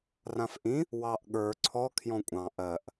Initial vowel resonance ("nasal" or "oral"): nasal